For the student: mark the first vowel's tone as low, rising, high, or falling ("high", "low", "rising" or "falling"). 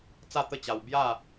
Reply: falling